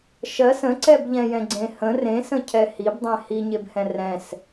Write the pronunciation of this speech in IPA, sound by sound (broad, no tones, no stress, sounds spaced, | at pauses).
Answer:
ʃ ɜ s ə̃ ǀ ɛ b ʎ ɛ̃ j ɛ̃ ɡ͡ǀ ẽ h ə̃ r ẽ s ə̃ cʰ ɛ h i b dˤ ɛ̃ h i ɲ e b h ɛ̃ r ɛ̃ s